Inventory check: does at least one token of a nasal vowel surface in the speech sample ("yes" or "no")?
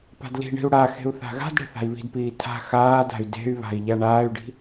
no